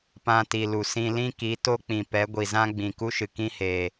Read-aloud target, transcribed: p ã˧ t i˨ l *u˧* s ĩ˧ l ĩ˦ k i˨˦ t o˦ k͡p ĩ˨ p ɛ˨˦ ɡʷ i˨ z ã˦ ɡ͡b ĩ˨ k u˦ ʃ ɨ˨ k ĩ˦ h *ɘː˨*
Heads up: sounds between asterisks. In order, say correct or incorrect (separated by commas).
incorrect, incorrect